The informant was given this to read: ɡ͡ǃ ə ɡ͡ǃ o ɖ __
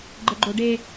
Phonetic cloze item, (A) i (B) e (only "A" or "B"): B